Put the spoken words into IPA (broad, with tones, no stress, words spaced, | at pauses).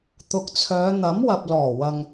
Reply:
t̪ʊ˨k̚t͡sʰœː˨˧ n̪ɐ˨˥mwɐ˨p̚lɔː˨˩wɐ˨ŋ